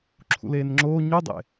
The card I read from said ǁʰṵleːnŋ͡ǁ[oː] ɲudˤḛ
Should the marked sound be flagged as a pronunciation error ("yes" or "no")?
no